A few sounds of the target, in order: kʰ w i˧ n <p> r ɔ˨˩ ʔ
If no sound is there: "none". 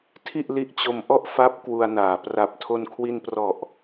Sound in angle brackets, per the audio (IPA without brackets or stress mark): p